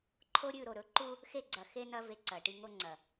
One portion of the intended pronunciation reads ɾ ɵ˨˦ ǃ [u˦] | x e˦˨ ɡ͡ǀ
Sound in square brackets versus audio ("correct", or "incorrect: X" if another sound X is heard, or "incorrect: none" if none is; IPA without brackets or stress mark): correct